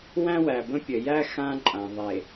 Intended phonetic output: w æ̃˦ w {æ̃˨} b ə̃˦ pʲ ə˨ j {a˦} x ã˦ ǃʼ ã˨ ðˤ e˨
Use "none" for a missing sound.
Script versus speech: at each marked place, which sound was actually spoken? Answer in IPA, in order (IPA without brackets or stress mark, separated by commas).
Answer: æ˨, æ˦